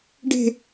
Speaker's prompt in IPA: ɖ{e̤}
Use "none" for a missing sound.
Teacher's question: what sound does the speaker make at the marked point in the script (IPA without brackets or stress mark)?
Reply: e̤